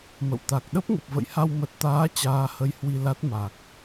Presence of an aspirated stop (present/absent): absent